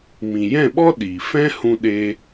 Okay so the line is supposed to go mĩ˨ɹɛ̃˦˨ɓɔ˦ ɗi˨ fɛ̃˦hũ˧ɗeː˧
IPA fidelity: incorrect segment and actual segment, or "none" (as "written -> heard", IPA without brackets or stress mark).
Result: ɹ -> j